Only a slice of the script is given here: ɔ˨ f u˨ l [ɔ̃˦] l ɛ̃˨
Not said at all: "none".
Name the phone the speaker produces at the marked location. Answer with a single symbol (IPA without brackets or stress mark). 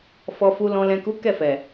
ɔ̃˨